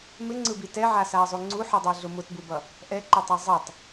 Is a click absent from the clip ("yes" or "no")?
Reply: no